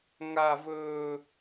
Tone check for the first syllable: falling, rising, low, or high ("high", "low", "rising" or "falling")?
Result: high